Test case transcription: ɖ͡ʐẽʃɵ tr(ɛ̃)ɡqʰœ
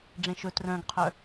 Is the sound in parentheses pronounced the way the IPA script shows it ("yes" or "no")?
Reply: no